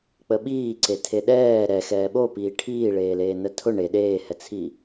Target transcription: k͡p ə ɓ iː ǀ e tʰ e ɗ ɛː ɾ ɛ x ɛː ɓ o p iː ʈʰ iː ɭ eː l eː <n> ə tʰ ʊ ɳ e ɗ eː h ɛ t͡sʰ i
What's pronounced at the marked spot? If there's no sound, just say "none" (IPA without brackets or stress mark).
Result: n